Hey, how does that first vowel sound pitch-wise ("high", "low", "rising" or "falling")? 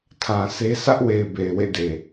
low